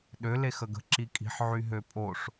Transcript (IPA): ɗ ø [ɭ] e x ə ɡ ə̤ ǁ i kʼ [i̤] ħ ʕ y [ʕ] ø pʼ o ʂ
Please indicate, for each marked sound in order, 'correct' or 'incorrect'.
incorrect: l, correct, incorrect: ɦ

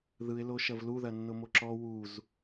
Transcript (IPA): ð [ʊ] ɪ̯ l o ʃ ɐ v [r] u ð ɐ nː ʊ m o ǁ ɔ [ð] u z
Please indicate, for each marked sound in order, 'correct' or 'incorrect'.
incorrect: ɯ, incorrect: l, incorrect: w

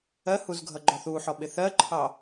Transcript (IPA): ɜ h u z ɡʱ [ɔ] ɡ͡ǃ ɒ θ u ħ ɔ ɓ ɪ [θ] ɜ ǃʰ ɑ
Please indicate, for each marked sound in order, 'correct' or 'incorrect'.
incorrect: ʌ, correct

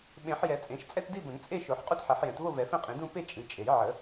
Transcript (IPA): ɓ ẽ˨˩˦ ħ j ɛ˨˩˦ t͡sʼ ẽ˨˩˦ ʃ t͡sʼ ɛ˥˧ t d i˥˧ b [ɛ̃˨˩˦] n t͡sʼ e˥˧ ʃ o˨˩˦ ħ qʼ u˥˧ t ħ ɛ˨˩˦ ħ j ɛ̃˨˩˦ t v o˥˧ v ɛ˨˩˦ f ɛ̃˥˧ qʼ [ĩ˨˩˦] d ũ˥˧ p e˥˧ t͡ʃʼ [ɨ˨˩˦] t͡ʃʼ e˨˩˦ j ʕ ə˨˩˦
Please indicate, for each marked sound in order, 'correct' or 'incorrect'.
incorrect: ə̃˨˩˦, correct, correct

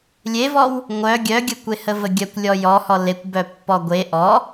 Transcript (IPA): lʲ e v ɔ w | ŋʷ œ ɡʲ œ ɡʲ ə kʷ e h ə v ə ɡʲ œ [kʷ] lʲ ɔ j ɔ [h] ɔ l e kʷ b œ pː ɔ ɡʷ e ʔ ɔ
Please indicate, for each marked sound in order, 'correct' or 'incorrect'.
correct, correct

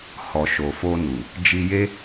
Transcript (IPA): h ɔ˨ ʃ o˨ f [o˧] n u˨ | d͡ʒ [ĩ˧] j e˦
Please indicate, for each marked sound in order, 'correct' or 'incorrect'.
correct, incorrect: i˧

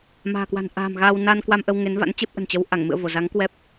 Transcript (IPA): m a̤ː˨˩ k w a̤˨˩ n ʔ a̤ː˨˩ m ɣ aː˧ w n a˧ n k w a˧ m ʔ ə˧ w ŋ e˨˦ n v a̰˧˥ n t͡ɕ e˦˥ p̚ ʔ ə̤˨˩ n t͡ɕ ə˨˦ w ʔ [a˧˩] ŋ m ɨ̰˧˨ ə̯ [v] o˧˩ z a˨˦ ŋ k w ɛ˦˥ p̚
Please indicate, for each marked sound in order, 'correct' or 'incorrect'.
correct, correct

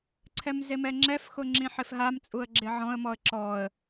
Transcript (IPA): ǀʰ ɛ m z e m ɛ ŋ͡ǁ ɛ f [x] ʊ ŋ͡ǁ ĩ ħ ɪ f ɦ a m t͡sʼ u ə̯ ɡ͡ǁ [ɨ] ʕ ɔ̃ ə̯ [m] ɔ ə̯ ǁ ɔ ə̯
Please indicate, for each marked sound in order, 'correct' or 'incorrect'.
correct, incorrect: ɪ, correct

